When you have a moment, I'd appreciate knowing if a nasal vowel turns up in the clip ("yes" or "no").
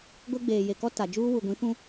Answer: yes